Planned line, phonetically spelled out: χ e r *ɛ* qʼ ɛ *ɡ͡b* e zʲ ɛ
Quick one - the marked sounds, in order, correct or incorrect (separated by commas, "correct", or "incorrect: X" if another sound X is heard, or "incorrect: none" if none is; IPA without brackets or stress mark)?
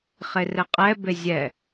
correct, incorrect: b